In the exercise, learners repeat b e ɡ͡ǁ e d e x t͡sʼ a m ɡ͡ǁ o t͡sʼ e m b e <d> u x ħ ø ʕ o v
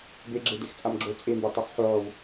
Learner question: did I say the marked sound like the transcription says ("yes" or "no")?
no